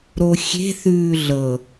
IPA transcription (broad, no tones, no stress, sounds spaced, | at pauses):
ɾ o xʲ e̤ θ ʉː ɮ ɤ